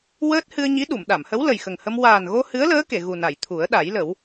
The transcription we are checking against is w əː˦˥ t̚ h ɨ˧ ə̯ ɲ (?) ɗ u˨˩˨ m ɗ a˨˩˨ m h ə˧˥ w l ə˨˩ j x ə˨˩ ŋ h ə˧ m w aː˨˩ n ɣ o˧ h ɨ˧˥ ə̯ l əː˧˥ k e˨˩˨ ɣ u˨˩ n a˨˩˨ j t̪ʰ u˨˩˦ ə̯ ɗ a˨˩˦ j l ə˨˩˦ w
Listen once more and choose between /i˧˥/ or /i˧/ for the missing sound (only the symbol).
i˧˥